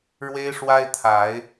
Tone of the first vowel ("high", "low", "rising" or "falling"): high